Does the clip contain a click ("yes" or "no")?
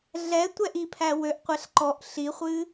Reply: yes